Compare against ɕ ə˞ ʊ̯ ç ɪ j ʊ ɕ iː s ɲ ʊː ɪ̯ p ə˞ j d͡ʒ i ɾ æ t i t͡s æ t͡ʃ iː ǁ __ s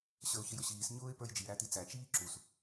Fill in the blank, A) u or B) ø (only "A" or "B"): A